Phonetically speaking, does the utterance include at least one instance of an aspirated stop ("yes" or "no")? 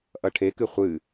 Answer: yes